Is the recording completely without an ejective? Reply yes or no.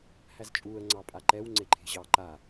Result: no